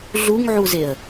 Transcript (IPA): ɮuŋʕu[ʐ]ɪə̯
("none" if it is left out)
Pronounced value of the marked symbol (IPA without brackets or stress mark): z